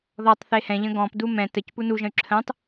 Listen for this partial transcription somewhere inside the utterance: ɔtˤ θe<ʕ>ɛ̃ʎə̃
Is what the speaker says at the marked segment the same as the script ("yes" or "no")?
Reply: no